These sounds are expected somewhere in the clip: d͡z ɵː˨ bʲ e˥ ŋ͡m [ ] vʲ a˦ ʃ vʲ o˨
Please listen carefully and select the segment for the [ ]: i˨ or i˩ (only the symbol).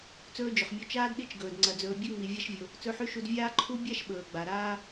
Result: i˨